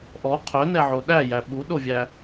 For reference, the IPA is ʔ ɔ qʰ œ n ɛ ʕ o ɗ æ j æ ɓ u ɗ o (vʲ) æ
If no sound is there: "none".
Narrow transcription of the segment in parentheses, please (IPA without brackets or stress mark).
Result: vʲ